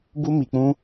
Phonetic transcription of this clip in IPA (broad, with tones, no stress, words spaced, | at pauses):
bu˦mi˧k͡pũ˦